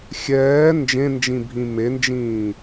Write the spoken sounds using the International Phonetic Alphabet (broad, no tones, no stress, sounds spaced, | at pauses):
xʲ ɛː n d͡ʒ ẽ n d͡ʒ ĩ bʱ ĩ m e n d͡ʒ ĩː